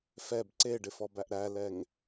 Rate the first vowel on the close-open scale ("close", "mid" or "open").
mid